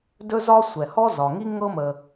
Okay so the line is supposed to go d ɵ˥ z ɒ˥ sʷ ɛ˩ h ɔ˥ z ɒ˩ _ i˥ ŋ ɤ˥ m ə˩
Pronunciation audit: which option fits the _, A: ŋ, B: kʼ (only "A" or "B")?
A